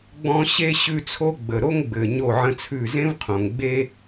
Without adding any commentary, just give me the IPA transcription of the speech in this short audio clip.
ɡ͡b ɔ̃˦ ɕ e˦ ɕ ʉ˦ t͡sʰ o˦ ɡ͡b ə˨ ɾ o˦ ŋ ɡ͡b ɘ˨ ɲ o˦˨ ʕ ə̃˦ t͡sʰ ʉ˦˨ z ẽ˦ v qʰ õ˨ ŋ ɡ͡b e˦

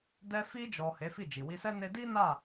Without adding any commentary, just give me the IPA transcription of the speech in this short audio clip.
d ɛ˧ f i˧ d͡ʒ ɔ˨ h e˨˦ f i˦˨ d͡ʒ i˨ w i˧ s ɛ˦ n e˧ d i˦ n a˦˨

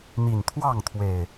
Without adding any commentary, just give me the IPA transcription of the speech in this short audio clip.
n̪ i˨˩ n t̪ʰ w ɑ˥˨ ŋ t̪ʰ w e˨˩ ɪ̯

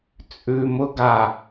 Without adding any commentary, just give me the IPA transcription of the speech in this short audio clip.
t͡sʼ ʉ m ʊ ɡ a

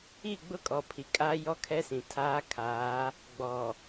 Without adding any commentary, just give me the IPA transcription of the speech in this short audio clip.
i˦˨ ɡ͡b ʊ˦ kʼ ɔ˨ pʰ i˨ kʼ aː˦ j ɔ˦ kʰ ɛ˦ s ĩ˨ tʰ aː˦ kʰ aː˨˦ | ɡ͡b ɔ˨

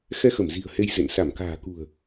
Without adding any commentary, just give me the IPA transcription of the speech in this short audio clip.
x ɛ˧ x ə˧˩ m z i̤˨˩ ə̯ h e˧ j z ḛ˧˨ n s a˧˩ m k a̤ː˨˩ k ṳ˨˩ ə̯

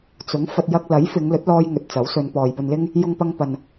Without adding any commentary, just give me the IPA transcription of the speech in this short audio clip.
t͡s ʊ˨˥ ŋ f ɐ˧ t̚ j ɐ˧ k̚ l ɐ˨˥ j f ɪ˨˧ ŋ l ɵ˨˥ t̚ l ɔː˧ j ŋ ɵ˨ t̚ t͡s ɐ˨˥ w s ɵ˨˧ n p ɔː˨ j p ɵ˧ n l ɪ˥ ŋ | j ʊ˥ ŋ p ɐ˥ ŋ p ɐ˨ n

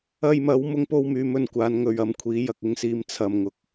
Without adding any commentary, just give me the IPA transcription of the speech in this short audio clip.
ɐ˧ j m ɐ˨˥ w m ʊ˥ ŋ p o˥ w m yː˨˧ m ɵ˧ n kʷ aː˨˥ n ŋ ɵ˨ ɥ ɐ˧ m kʷʰ iː˨˥ j ɐ˨ k̚ ɪ˧ ŋ s iː˨˧ m t͡sʰ ɐ˨ m ŋ ʊ˨ k̚

